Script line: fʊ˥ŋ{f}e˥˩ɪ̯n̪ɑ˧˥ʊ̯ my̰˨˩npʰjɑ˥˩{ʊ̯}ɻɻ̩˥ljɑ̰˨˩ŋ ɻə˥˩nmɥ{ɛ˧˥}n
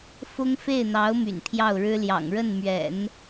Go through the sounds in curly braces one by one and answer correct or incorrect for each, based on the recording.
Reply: correct, correct, incorrect: ɛ̰˨˩˦

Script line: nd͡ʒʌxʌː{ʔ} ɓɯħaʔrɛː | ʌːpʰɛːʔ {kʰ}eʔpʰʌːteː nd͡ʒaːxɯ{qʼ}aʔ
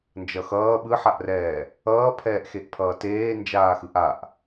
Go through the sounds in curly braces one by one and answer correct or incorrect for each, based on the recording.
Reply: incorrect: none, incorrect: x, incorrect: ʔ

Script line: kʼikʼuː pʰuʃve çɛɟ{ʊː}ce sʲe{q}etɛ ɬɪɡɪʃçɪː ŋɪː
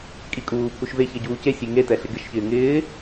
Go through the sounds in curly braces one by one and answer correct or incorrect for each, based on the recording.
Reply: incorrect: uː, incorrect: ŋ

